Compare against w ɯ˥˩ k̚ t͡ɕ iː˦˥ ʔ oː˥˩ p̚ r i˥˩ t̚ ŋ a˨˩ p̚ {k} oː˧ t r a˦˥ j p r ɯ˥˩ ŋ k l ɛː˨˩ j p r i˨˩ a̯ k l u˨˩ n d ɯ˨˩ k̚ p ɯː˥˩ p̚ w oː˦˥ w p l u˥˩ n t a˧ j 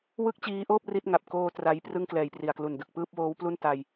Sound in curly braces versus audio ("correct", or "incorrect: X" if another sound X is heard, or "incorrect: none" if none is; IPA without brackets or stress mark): correct